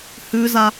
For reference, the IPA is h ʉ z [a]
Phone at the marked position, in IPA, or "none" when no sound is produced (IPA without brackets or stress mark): a